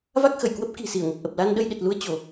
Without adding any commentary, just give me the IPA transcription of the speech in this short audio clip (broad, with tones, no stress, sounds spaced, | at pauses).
v a˦˥ k̚ x ə˧˩ j k w ə˦˥ p̚ k i̤˨˩ s i˧˩ ə̯ ŋ ə˨˩ p̚ ʔ ə˨˩ p̚ l a˧ n ɗ ə˧ j ɗ e˨˩ t̚ l u˧ ə̯ t͡ɕ o˧˩˨